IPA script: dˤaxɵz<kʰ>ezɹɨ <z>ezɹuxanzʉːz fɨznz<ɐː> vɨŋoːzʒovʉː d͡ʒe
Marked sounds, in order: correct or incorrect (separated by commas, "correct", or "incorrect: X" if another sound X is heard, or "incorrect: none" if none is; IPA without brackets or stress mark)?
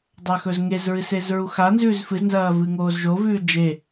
incorrect: ŋ, incorrect: s, correct